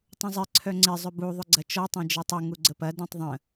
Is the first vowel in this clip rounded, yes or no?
yes